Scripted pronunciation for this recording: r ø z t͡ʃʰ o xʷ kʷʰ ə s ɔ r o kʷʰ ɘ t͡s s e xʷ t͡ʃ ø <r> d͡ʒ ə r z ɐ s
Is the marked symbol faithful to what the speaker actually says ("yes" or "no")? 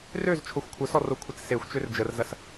yes